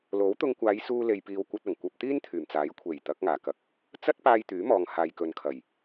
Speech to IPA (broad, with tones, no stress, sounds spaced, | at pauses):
l o˨˥ w t̪ ʊ˧ ŋ kʷ aː˨˧ j s uː˧ l e˨ j p iː˨ w kʷ ɐ˧ t̚ ɐ˨˩ ŋ kʷ ɐ˧ p̚ t̪ iː˥ n t̪ʰ yː˨˩ m t͡s aː˨˥ j kʷʰ e˨˩ j t̪ ɐ˨˥ k̚ ŋ aː˨˩ k ɐ˧ k̚ | t͡s ɐ˥ t̚ p aː˧ j t̪ yː˨˥ m ɔː˨ ŋ h aː˨ j k ɵ˨ n kʰ ɐ˨˩ j